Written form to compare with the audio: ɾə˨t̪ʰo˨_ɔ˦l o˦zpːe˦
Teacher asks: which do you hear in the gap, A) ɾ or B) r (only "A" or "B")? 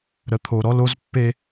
A